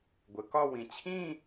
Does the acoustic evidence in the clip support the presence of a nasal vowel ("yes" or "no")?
yes